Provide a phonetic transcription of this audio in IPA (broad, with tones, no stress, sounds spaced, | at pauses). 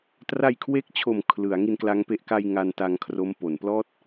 t r a˧ j kʰ w e˦˥ k̚ t͡ɕʰ o˨˩ m kʰ l ɯ˩˦ a̯ ŋ i˧ n k l a˦˥ ŋ p e˦˥ ʔ k a˧ j ŋ a˧ n t a˧ ŋ kʰ r o˦˥ m p o˩˦ n p l ɔː˥˩ t̚